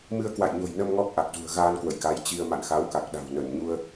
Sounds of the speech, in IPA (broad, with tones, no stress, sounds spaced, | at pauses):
m ɨ˧ ə̯ k w a̰˧˨ j ɲ o̤˨˩ j n ə˧ m ŋ ɔ˦˥ k̚ ʔ a˨˩ k̚ z ṳ˨˩ ə̯ ɣ aː˧ n k w ə̰˧˨ j k a˨˦ j t͡ɕ i˧ ə̯ m a̰˧˨ n x a˨˦ w k a˨˩ k̚ ɗ a̤˨˩ w n ə˧˩ n ɲ u˧ ə̯